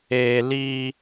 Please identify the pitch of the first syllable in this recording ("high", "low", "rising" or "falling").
high